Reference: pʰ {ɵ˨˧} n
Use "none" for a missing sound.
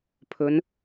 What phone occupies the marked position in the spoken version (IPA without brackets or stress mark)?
ɵ˨˧